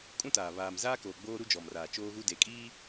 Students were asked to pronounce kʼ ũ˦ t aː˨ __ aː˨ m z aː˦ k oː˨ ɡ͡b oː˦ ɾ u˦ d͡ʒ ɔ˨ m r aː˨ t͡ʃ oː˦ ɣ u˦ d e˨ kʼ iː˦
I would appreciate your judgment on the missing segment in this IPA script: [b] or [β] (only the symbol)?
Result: β